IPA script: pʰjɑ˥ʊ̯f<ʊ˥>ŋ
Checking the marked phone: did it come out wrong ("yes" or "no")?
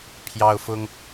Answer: no